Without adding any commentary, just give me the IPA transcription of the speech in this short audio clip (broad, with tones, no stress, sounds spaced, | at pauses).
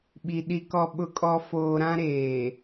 ɓ i˨ ɗ i˨ k ɔ˨ ɓ ʊ˨ kʼ ɔ˨ f oː˨ ɾ ã˦ ɾ eː˨